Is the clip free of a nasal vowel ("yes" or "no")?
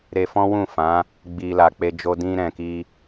no